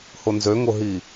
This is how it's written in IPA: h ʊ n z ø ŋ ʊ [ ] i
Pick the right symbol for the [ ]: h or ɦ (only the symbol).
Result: ɦ